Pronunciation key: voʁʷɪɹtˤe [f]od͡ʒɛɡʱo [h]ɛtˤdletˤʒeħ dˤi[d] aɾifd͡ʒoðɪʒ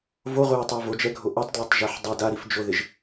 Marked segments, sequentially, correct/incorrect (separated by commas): incorrect, incorrect, correct